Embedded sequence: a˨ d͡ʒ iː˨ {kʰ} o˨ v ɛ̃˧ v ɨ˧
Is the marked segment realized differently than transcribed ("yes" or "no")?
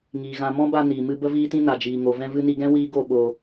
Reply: yes